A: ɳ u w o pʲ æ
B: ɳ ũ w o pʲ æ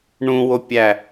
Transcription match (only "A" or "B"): B